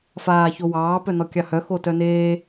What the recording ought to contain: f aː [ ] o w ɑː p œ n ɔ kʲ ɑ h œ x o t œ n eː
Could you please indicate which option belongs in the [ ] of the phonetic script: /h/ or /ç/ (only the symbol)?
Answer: ç